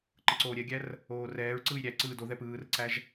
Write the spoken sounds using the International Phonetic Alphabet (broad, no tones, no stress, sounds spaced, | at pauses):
ǃ ɯ ǀ oː ɾʲ ɛ ɡʲ æ r | oː r ɛː ɹ ǀ ɯː j ɾʲ æ ǀ ɯː d o ð ɛ p ɯː r ǀ æ ʒ